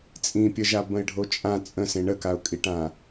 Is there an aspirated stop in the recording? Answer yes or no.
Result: no